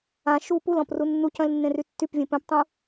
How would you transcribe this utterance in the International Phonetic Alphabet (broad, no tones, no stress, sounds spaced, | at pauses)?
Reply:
ã ʃ u p u l ɔ̃ p r u nː u c œ̃ l nː ẽ r y tː y p vʲ ẽ p œ̃ p tˤ ũ